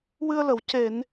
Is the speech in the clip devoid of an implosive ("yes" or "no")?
yes